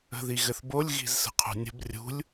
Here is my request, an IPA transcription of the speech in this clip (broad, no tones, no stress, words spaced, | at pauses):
ə̤ðiɣɘθbolʲ ɣi̤zsə̤qʰṳnʲə̤b rʲṳlʲ